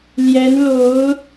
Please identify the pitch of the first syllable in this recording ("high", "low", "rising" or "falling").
rising